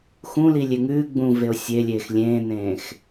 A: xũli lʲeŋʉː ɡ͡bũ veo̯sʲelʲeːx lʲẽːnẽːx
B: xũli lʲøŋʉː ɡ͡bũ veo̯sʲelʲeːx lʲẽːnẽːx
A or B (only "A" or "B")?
A